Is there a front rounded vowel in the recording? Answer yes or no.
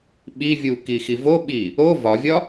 no